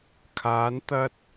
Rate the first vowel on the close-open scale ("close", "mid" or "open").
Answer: open